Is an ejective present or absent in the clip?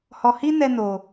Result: absent